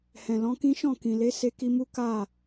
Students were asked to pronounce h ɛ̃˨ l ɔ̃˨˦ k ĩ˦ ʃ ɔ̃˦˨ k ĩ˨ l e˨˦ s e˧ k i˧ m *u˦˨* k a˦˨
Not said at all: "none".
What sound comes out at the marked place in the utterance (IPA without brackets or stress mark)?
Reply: u˦